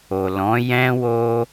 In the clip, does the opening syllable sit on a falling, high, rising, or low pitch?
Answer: low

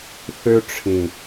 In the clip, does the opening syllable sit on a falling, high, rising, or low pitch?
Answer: high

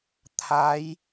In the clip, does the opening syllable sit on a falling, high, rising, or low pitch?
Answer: rising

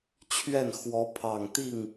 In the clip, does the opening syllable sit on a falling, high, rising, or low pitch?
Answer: falling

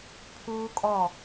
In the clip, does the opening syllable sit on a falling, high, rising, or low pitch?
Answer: high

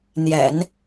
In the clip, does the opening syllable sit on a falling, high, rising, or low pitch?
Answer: low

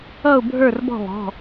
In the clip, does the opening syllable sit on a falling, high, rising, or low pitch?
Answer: falling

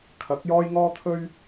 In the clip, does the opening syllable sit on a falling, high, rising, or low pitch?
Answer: rising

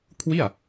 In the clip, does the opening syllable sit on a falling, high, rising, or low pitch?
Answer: falling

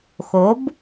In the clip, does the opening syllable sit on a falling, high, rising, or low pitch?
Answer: rising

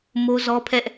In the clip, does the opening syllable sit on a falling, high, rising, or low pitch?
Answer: high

